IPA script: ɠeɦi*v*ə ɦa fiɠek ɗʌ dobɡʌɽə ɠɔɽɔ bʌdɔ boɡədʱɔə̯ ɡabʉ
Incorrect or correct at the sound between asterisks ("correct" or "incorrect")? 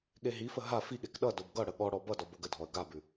incorrect